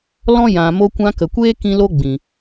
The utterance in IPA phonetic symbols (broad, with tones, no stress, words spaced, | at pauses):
lɔ̃˦ jã˨ mo˧kʷã˧kə˨kʷeː˦ kĩ˦lo˦ɡ͡bĩ˨